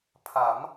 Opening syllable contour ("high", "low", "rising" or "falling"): rising